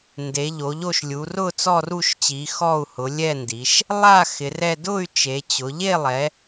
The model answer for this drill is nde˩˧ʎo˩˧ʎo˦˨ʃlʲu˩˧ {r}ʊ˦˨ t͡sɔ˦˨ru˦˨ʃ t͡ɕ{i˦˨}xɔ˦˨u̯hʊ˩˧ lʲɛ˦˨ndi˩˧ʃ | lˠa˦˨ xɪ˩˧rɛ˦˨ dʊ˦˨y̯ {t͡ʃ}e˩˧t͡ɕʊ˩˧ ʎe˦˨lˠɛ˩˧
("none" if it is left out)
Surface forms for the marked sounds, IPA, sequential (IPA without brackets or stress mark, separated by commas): r, i˩˧, t͡ʃ